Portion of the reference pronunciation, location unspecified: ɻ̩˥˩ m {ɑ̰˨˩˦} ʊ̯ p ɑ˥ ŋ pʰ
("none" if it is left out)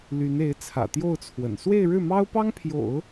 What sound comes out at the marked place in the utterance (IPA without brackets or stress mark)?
ɑ˥